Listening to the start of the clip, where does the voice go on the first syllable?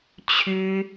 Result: high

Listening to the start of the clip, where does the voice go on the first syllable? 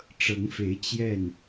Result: rising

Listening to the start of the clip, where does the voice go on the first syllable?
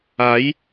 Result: rising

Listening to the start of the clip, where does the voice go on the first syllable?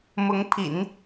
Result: rising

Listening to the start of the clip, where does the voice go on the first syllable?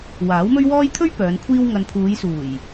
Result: rising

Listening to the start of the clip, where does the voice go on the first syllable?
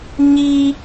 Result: high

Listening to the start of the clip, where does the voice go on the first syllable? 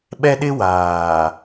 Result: high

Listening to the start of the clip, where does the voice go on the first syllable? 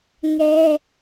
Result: high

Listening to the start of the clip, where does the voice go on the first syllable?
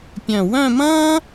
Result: low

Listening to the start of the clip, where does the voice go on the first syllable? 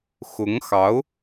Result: rising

